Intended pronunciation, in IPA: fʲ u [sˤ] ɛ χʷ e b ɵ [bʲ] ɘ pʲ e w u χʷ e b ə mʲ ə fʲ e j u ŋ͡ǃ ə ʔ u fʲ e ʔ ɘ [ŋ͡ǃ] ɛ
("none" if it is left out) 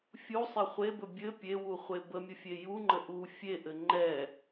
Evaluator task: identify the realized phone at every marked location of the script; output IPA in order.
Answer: sˤ, bʲ, ŋ͡ǃ

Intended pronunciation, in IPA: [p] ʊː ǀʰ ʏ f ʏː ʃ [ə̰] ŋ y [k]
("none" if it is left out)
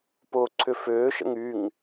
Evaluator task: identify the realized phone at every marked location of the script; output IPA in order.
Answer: p, ə̰, ŋ

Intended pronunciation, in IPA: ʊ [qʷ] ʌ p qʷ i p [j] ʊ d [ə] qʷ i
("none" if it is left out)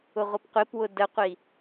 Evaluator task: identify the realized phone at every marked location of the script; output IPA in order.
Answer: ʁʷ, w, ə

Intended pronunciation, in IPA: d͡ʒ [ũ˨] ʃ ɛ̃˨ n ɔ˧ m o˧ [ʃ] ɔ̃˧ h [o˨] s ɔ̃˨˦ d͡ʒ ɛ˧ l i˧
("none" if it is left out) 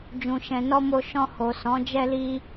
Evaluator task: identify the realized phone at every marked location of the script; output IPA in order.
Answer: ũ˨, ʃ, o˨

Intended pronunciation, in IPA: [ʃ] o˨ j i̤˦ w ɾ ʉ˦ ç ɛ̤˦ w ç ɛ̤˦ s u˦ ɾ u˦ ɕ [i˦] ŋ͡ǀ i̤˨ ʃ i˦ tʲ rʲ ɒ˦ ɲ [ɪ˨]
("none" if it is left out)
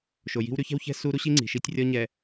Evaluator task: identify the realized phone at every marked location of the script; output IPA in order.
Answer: ʃ, i˦, ɛ˨

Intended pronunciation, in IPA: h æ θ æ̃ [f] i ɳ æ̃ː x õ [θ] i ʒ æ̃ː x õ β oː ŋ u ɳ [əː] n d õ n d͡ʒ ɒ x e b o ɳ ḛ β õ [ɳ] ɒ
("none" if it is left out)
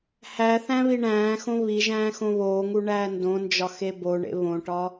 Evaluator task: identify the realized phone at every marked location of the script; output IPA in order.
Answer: β, β, æː, ʈ

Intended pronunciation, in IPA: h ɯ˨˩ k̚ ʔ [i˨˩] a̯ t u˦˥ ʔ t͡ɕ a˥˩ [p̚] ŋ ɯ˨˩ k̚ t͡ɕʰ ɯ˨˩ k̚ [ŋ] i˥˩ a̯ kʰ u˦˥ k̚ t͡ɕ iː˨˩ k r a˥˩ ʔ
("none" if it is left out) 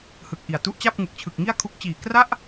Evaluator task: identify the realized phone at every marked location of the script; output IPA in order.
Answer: i˨˩, p̚, ŋ

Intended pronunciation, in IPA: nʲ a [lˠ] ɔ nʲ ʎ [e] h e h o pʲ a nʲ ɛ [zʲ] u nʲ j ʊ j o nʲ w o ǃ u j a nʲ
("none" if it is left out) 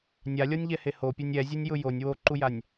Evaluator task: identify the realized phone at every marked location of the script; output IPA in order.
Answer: lʲ, ɛ, zʲ

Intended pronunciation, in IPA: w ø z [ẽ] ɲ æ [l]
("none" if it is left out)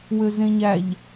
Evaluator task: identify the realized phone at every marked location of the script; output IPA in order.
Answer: ẽ, ʎ

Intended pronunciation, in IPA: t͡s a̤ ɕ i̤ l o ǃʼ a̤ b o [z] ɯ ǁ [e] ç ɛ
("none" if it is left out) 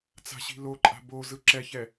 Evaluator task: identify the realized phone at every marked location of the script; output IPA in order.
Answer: z, ɛ

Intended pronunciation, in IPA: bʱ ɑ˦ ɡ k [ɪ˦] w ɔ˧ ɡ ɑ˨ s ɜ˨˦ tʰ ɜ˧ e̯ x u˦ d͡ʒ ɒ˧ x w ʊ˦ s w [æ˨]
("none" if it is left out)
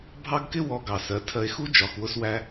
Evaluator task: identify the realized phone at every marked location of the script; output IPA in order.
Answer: ɪ˦, æ˦

